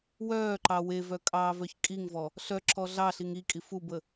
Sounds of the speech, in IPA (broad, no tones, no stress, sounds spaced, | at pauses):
w œː ǃ ɑ w e v œ kʼ ɑː v œ ç kʼ i ŋ v ɔ | ɬ œ ǁ ɔ ɮ ɑ ɬ i ŋ i kʼ i f u b ə